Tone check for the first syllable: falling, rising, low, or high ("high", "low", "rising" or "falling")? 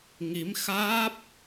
rising